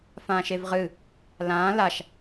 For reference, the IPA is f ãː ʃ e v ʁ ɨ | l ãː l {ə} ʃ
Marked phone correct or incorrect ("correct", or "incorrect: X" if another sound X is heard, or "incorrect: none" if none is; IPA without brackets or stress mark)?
incorrect: a